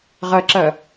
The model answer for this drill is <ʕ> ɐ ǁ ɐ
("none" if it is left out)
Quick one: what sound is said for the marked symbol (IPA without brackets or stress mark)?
ʁ